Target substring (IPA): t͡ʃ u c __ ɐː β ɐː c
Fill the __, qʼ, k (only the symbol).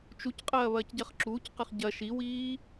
qʼ